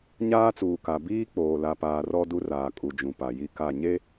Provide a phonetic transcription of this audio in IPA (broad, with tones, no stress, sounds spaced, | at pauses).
ɲ aː˦ t͡s uː˨ k a˨ b iː˦ k͡p oː˨ l a˨ p aː˨ r ɔ˦ d u˦ r aː˨ kʼ u˨ d͡ʒ ũ˨ p a˨ j i˦ k a˦˨ ɲ e˦